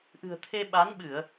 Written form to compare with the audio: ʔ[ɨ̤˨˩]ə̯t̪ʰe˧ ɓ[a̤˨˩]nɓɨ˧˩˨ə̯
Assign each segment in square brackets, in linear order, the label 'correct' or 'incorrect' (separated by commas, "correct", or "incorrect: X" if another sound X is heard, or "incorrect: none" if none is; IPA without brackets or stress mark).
correct, incorrect: a˨˦